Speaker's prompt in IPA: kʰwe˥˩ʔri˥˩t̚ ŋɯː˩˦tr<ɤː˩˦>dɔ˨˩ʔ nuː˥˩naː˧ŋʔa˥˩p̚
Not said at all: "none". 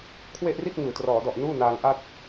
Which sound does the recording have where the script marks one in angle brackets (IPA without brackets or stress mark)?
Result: ɔː˩˦